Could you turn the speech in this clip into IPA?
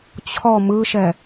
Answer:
t͡ɕʰɔ mɯʃɛ

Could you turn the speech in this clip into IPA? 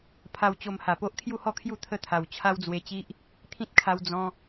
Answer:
pʰa˧wt͡ɕo˧mha˨˩po˦ʔ kʰju˥˧hɔ˥˧kʰju˥˧ t̪ʰə˥˧t̪ʰa˨˩w t͡ɕʰa˦wd͡zwe˧t͡ɕi˦ʔ | t̪ʰĩ˦t̚kʰa˧w d͡zɔ̃˧

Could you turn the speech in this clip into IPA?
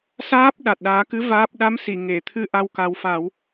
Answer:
saː˦˥p̚ ɗa˨˩t̚ɗaː˨˩˦kɨ˧˥ vaː˦˥p̚ ɗa˧˥msi˨˩˨ ŋe˨˩˨t̪ʰɨ˧ ʔa˧wka˨˩˦wfa˨˩˦w

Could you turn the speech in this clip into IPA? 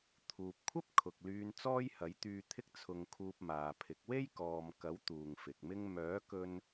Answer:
t̪ʰuː˨p̚kʷʰɐ˥p̚ kʰʊ˨k̚lyː˧n t͡sɔː˥jhɐ˨˥jt̪yː˧t̪ʰɪ˥k̚ t͡sʰʊ˧ŋkʰuː˧p̚maː˨pʰɪ˨˥k̚ we˥jkɔː˨mkɐ˨˥w t̪uː˨ŋfɪ˨k̚mɪ˥ŋ mœː˨˥kɵ˧n

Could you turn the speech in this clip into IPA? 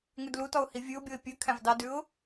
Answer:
ŋʉdlutɔʊ̯ hivʲʉʊ̯bʲoɪ̯ pʲʉ kʰæ̃vdɑdʉʊ̯

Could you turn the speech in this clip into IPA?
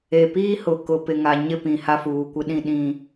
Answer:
e˨piː˦hʊ˨ kʊ˨pɪ˨ŋa˨ ɲɪ˦pĩ˨ ha˦fuː˨kʷɪ˦ɗĩ˦ ɗĩ˦

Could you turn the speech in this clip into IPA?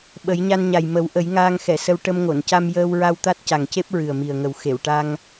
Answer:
ɓə˨˩˦jɲa˧nɲa˨˩j mə˨˩˦w ʔə˨˩˦jŋaː˧ŋxɛ˨˩˨sə˧w ʈə˧mŋo˨˩˨n ca˧mjəː˧wɹa˧w t̪a˦˥t̚ca˨˩ŋce˦˥p̚ ɹɨ˨˩ə̯mi˨˩ə̯ŋə˨˩w xe˨˩˨wʈa˧ŋ

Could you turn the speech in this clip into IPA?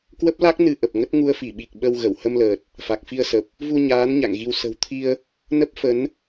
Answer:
kwə˦˥p̚la˦˥k̚ nɨ˧ʔə˨˩p̚ ŋə˦˥t̚ ŋu˧ə̯fi˧˩ɓi˨˩k̚ ɓə˧w ɣə˧˩w hə˧mləː˨˩t̚ | fa˨˩k̚fi˧ə̯sə˨˩p̚ | vu˧ɲaː˨˦n ɲa̰˧˨ŋɣi˧w sə̤˨˩w t̪ʰi˧ə̯ | nə˦˥p̚fə˨˦n

